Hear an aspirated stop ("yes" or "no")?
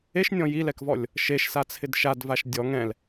yes